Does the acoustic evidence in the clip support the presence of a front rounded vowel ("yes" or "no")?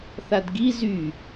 yes